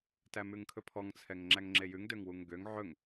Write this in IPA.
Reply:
tæmʉŋkʰɵpʰɔŋ t͡sʰɛŋŋ͡ǁæŋŋ͡ǁejʉŋ døŋwuŋɡøŋ ʕɵŋ

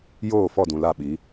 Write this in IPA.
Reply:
joː˦˨fɔ˦˨dũ˨ la˦˨ɓi˨˦

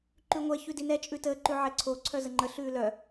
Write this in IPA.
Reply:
ǃʉŋʷɛ çʉdinɛ t͡ʃʼʉtəː ǃʉʕɛǀʰo ǀʰœzəŋ͡ǃə ɬʉːlœ

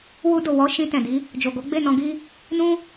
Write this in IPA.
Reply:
wu˧do˨ wɔ˨˦ ʃĩ˧ tɛ̃˨di˨˦ | d͡ʒo˨ɡo˨˦ɡ͡be˦˨ nɔ̃˧ɡi˦ | nũ˦

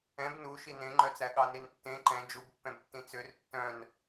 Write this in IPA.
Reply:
ɛ̃b nu ʃinẽŋ͡ǃœt͡sæ ɠɑnintːẽ ǃɛ̃ d͡ʒubpːɛ̃btːĩ t͡sør tːœ̃n

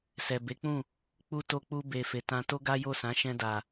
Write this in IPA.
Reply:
sɛ˨be˨˦k͡pũ˦˨ | k͡pu˦ to˧k͡pu˧be˨ fe˨tã˧to˦ ɡa˦jo˦˨sã˨˦ ʃɛ̃˧da˨

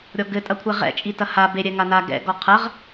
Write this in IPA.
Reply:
ɾʲɔɡɘtʼɐkʷʰɛ ʁɛ̰t͡ʃʼi tɐha beɾʲɛ ŋana ɡɛ̰ɡɔ qʰɐʁ

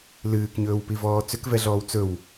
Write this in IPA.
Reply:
lɨːkɲɵːwpivɔː t͡sʏkvɛɮɔːw t͡sɵw

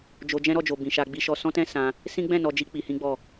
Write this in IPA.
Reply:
d͡ʒo˧ d͡ʒɛ̃˦ɾɔ˦˨d͡ʒo˨ bĩ˨ʃa˧ɡ͡bi˧ʃɔ˧ sɔ̃˦tɛ̃˦ sã˧ | sĩ˦ ɡ͡bɛ̃˦˨ nɔ˧d͡ʒi˦ k͡pi˧hĩ˦ɡ͡bɔ˦˨

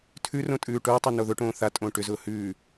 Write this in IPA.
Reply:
tʰʉrõ tʼʉːʈʊːtˤo noðʊʈõː θa tʼõːʈʏzʊː hʉː

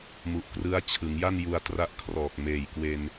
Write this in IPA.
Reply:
mu˨˩ʔkrɯ˦˥a̯ t͡ɕʰɯ˩˦ŋja˥˩n ju˧a̯tra˦˥ʔkʰrɔː˨˩k̚ meː˨˩jkwe˧n

